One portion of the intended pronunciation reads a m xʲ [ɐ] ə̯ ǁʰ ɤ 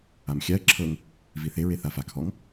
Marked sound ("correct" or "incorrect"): incorrect